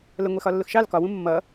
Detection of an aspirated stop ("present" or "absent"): absent